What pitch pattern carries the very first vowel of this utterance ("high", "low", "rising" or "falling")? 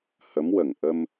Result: rising